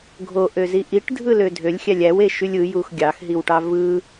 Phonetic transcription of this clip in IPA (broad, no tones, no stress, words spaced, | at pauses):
ɡʱoʔøzi ʔiʈdʱɯlø dʱølʲxʲælʲ æweʃylʲ ɯjux ɡʲɑxɦiwʈɑ vɯ